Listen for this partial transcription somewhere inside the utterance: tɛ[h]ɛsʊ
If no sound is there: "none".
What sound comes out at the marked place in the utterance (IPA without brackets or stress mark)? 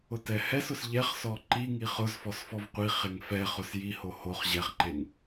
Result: h